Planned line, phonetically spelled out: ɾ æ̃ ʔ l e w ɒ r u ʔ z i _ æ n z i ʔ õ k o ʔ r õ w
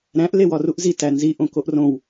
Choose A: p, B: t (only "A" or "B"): B